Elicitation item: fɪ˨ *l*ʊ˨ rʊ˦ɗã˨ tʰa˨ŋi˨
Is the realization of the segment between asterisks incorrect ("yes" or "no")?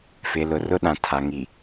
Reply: no